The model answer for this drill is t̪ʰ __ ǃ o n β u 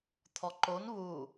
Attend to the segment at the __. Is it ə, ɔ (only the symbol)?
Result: ɔ